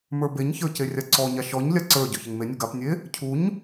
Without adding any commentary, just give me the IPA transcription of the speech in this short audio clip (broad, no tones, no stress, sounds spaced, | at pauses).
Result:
m ə˞ b e ɲ ç ə˞ c e rʲ a ǀ ɔ ɲ a ʃ ɔ ɲ lʲ a ǀ ə˞ ɟ ɔ ç e ŋ m e nʲ ɔ ɡ a p nʲ e | cʰ u ɲ